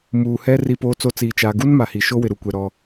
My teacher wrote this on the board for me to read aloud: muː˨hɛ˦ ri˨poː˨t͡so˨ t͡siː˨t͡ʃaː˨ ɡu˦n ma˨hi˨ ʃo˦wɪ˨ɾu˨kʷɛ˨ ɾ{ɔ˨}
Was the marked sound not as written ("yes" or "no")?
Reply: yes